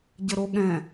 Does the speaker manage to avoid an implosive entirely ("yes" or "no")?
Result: no